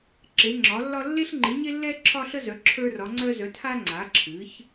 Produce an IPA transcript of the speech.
ǁ e˩˧ ŋ͡ǁ ɒ˩˧ lː ɒ˧ lː e˧ ɬ ŋ͡ǃ ɨ˩˧ ɲ e˧ lː ɛ˧ ǁʰ ɒ˧ ɬ ə˧ z œ˩˧ ǁʰ ə˞˧ r ɒ˩˧ ŋ͡ǀ œ˧ z œ˩˧ tʰ a˧ ŋ͡ǀ a˩˧ ǁʰ ɨ˩˧ ç

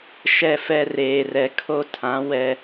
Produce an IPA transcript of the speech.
ʃ ɛ˦˨ f ɛ˦ r eː˨ r ɛ˨ kʰ o˦ tʰ ã˨˦ w ɛ˦

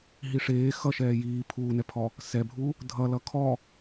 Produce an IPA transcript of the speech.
ɦ i ʂ eː x ʌ ʃ ɛː j iː pʰ uː n ɛ pʰ ɔ | s ɛ bʱ u | dʱ ʌ l ʌ kʰ ɔ

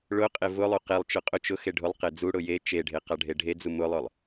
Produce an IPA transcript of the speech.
ɭ ʊ qʼ e v ʊ lˠ u q e lˠ t͡ʃ ʊ qʼ ʊ t͡ʃ ʊ x e ɖʱ ʊ lˠ q e d͡z u ɽ ʊ j e t͡ʃ e ɖʱ e q a ɖʱ e ɖʱ e d͡z u m ʊ lˠ ʊ lˠ

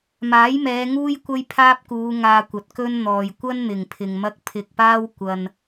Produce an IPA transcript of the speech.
m aː˨˥ j m ɛː˨˧ ŋ uː˥ j kʷ ɐ˥ j pʰ aː˥ p̚ k uː˨˧ ŋ aː˧ kʷ ɐ˨ t̚ k ɵ˥ n n̪ ɔː˨ j kʷ ɐ˥ n n̪ ɪ˨˩ ŋ pʰ ɪ˨ ŋ m ɐ˥ k̚ pʰ ɪ˧ k̚ p aː˥ w kʷ ɐ˧ n

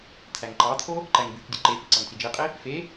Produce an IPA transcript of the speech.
t̪ʰ æ ŋ ǃ ɑ t̪ʰ o | ǃ æ ŋ b y k dʲ ɯ ǃ e p i ǀ ɑ ŋ t͡s i d͡ʒ i qʼ i | f e

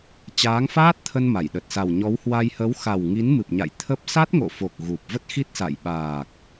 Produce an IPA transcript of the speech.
t͡ɕ aː˨˦ ŋ f aː˦˥ t̚ t̪ʰ ə˧ n m a˧˩ j ɗ ə˨˩ t̚ s a˨˩ w ɲ ɔ˨˦ w h w a˧ j h ə˨˦ w x a˨˩ w ŋ i˨˦ n m ɨ˨˩ p̚ ɲ a̰˧˨ j t̪ʰ ə˦˥ p̚ s a˦˥ t̚ ŋ o̰˧˨ f o˨˩ k̚ ɣ u˨˩ p̚ v ə˦˥ t̚ x i˦˥ t̚ s a̰˧˨ j ɓ aː˨˩ k̚

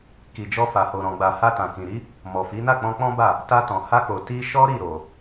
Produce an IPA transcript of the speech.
k i˨ d͡ʒ ɔ˧ f a˨ h o˨ ɾ ɔ̃˨ ɡ͡b a˨ h a˧ t ã˨ k ĩ˨ ɾ i˨˦ | m ɔ˨ f i˨˦ n a˦˨ k͡p ɔ̃˧ k͡p ɔ̃˦ b a˦˨ | t a˧ t ɔ̃˨ h a˧ k͡p o˨ t i˧ ʃ ɔ˦ ɾ i˦˨ ɾ o˨

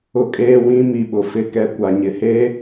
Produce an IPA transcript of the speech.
ʊ˦ kʼ eː˦ w ĩ˦ m i˨ ɓ ʊ˨ f ɪ˦˨ k ɛ˦ kʷ a˨ ɲ ɪ˨ h eː˦

